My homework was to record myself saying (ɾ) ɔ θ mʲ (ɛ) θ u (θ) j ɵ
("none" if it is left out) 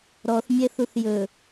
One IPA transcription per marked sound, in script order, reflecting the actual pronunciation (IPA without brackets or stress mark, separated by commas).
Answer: ɾ, ɛ, θ